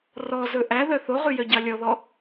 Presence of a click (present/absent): absent